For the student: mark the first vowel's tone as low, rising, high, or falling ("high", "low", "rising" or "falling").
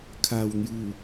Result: low